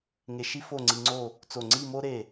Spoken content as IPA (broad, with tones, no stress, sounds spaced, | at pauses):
ŋ e˧ ʃ i˥ f o˥˧ ŋ͡ǀ i˧ ŋ͡ǀ o˥˧ | t͡s o˧˩ ŋ͡ǀ i˥˧ m o˥ ɾ e˧˩